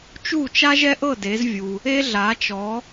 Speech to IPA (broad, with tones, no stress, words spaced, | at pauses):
t͡ʃu˥˨t͡ʃa˥ʒɛ˥ʔɤ˥˨ de˨˥zvʲu˨ | e˥ɮa˨˥t͡ʃɔ˨˥